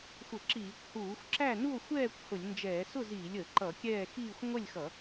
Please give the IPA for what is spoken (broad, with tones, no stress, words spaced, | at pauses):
xʷə˧˩˧ǁiː˧˩˧kʷ huː˧˩˧xʷ ǁæ˥˨nu˥˨o̯ xʷɛː˥˨kʷ hʊ˧˩˧lʲnd͡ʒɛː˧˩˧ sʊ˥˨ziː˧˩˧lʲəː˧˩˧ ǃʌ˧˩˧kʲɛː˥˨ xiː˥˨xʷ ŋʷɛ˥˨lʲxʌ˧˩˧